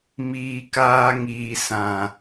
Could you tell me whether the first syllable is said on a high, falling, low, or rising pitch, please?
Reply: low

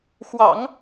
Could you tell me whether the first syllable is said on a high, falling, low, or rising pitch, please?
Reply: low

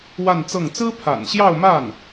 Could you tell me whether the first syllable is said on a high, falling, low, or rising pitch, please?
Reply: falling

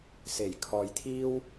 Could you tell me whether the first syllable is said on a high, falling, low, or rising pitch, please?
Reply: low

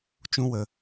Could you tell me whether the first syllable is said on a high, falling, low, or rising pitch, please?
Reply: high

